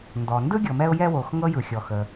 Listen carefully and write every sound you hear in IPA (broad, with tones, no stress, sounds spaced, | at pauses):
n d ɔ˩ n d ɯ˥ ɡʲ ɤ˩ m ɛ˧ ʊ̯ j ɛ˧ w o˩ x ŋ ɤ˥ j ɯ˩ xʲ ɔ˩ x ə˩